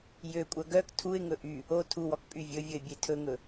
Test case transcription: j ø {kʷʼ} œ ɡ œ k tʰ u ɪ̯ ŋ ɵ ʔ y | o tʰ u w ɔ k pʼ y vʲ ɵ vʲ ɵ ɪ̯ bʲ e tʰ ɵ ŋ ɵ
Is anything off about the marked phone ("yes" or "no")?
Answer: no